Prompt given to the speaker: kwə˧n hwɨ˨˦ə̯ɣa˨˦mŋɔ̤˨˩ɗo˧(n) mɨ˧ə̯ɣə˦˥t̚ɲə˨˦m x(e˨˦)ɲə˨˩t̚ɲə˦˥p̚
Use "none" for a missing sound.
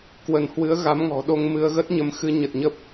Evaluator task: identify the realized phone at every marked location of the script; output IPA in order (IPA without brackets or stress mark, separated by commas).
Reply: ŋ, ɨ˨˦